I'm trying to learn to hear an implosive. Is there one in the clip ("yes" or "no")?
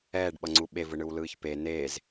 yes